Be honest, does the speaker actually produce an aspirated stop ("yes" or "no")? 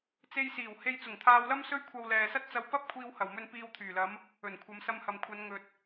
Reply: yes